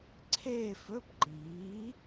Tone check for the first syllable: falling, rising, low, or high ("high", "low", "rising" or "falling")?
falling